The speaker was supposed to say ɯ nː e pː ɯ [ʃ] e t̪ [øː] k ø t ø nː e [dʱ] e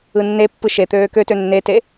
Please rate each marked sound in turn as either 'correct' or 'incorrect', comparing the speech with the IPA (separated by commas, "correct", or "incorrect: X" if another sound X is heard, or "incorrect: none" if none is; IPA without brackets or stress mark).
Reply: correct, correct, incorrect: t